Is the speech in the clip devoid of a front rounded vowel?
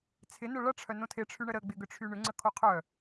no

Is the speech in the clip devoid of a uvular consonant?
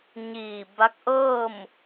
yes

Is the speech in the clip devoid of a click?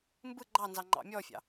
no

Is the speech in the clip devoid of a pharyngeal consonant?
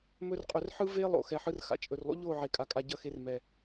no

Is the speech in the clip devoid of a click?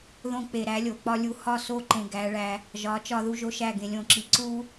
no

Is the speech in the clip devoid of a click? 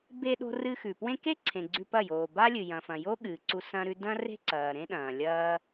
no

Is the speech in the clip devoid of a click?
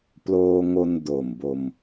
yes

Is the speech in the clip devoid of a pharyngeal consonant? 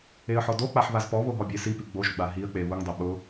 no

